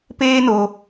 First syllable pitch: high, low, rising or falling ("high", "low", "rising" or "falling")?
high